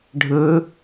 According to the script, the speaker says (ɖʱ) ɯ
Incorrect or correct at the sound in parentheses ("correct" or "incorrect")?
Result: correct